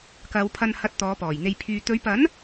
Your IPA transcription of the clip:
k ɐ˨˧ w pʰ ɐ˧ n h ɐ˧ t̚ t̪ ɔː˨˧ p ɔː˨˩ j n̪ e˧ j pʰ yː˧ t̪ ɵ˨˧ ɥ p ɐ˨˥ n

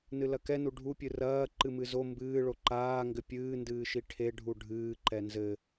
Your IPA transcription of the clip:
n ɨ l ɐ k ɛ n u ɖʱ u pʲ ɨ r ɐː ǃ ɨ m ɨ z o m b ɨː ɭ o ǃ aː ŋ ɡ ɘ pʲ ɨː n d ɨː ʃ i ʈʰ e ɖʱ u ɖʱ ɨː ǃ ɛ n z ɘ

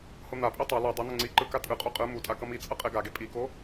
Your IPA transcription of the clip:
h o n̪ a pʼ i tˤ a l ɛ dˤ ɛ n̪ ʌ ŋ͡ǀ i ǃ ɯ k a tʼ ɯ qʼ o qʼ ɯ m u tʼ a k ʌ m i t͡sʼ ʌ qʼ e ɡ a ɡ e pʼ i k o

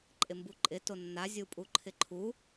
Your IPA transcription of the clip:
ǃʼ ɪ m b u ǃʼ ɪ t o nː a zʲ u pʼ u ǃʰ ɪ ǃʰ u

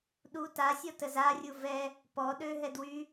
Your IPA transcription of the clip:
ɗ u t a sʲ ɔ t ə z a rʲ u v ɛ | p ɔ ɗ ø ɦ ɛ d w y

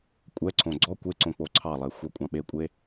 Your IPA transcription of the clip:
kʷʼ ɛ ǀʰ õ ɡ͡ǀ ɔ kʷ e ǀ õ k͡p o ǀʰ ɑ lˠ e xʷ ɑ kʷʼ ɑ̃ ɓ e kʷʼ e

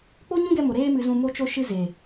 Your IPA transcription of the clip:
k͡p o˦ ɲ ũ˦ ɡ ɛ˧ m o˨ ɾ eː˦ m ɨ˧ z ũ˧ m o˧ t͡ʃ o˧ ʃ ɨ˧ z e˨

